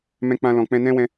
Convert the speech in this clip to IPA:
mɛ̃˧k͡pã˧lɔ̃˨k͡pɛ̃˧ nɛ̃˦wɛ̃˧

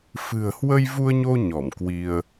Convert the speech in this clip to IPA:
fɨ̤˨˩ə̯hwə˧jvu˧ə̯ɲo˧ ɲɔ˧˩mkwi˧ə̯

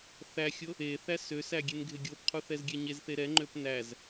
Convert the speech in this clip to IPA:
θæxʲo | e θæsøsæ ɡʲenɡʱeɡʲopqʰu θɛzɡʲɛɲezθe ɾɛŋ͡ǃøp næz

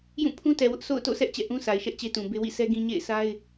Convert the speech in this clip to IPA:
jũ˦˨pʰũ˦tɛ˨wʊ˦ʔ sʰo̰˦˨ʊ̯to̰˦˨sʰɛ˦ʔ t͡ɕɛ̰˦˨ʔũ˦sʰa˨ɪ̯ʃɛ˦ʔ t͡ɕe˦tũ˨be˦ wḭ˦˨sɛ˦ ɡĩ˦ ɲḛ˦˨ɪ̯ sa˦ɪ̯

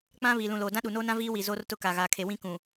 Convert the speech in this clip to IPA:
k͡pã˦ βiː˨lũ˨loː˨ dã˦ɗu˨noː˦nã˦ viː˦wi˨ zoː˦rtʊ˦ka˨ ɣaː˨kʰe˨wĩ˦kũ˨

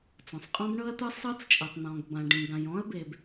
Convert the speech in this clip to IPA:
t͡sɔ̃˩sˤqʼɔ̃˥bɳɤ˥ɐ̯t̪ɯ˥ sˤɤ˥t͡st͡ʃʼɛ˩tˤn̪ɔ̃˩ɡ bã˩ ɖĩ˩ ɡã˩jɔ̃˥ɐ̯be˩b

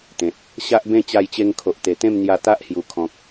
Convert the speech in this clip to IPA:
t̪ẽ˨t̚ | ɕa˦ʔbẽ˥˧ t͡ɕa˧jt͡ɕe˧ŋ kʰo˨ʔt̪e˨˩t̪ẽ˥˧mn̪ja˧ t̪a˦ʔhju˨˩kʰɔ̃˨k̚

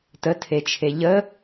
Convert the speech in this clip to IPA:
tətʰet͡ʃʰe ʎə

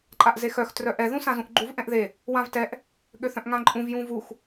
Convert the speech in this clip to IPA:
ǃʼaʔzexœx trœʔɛ ðũsãzũʔɡ͡ǃuv ʔɛ̃ʔðe | wãvtɛʔ | ɠøθœ̃ʔŋãǃʼũv jũvux

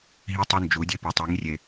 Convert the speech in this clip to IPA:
ɦi˦tˤo˦ nd͡ʒu˨˦dʲe˦pu˨ tˤi˨˦ŋrʲe˧

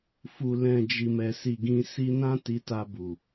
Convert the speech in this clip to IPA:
fu˨lɛ̃˨ d͡ʒi˨mɛ˨si˨ɡĩ˧ si˧nã˦ ti˧ta˧bu˨

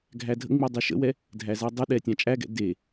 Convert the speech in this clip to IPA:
ɡʱædʱə̰ŋ͡mi dˤiʃə̰wɛ | dʱæzædˤəɗɛ tʲãt͡ʃʼæɡɛ̰ de

